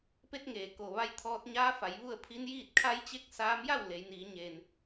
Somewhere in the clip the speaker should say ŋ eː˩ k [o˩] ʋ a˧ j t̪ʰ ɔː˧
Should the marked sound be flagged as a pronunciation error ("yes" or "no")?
no